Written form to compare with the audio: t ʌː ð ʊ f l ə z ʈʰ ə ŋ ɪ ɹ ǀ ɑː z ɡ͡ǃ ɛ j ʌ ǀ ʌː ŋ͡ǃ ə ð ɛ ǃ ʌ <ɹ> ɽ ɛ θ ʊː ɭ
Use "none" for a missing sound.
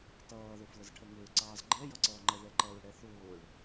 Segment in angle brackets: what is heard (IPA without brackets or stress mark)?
ɹ